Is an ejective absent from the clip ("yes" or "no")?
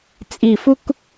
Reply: no